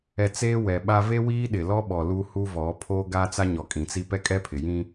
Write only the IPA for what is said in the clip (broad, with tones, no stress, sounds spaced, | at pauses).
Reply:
ɛ˨ t͡s eː˦ w ɛ˨ ɓ a˦ v e˦ w iː˦ ɗ ɪ˨ l ɔ˦ ɓ ɔ˨ l u˦ h u˦ v ɔ˨˦ pʰ oː˦ ɡ a˦ t͡s a˦ ɲ ɔ˨ kʼ ĩ˨ t͡s i˦ p ɛ˦ kʼ ɛ˦ pʰ ɪ˨ j ĩ˦